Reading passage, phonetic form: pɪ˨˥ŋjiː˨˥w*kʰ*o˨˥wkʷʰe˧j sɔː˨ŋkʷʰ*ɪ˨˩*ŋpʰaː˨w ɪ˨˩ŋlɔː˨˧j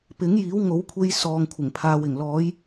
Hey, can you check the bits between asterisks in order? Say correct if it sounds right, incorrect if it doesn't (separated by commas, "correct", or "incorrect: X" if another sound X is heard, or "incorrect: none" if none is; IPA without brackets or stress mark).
incorrect: ŋ, correct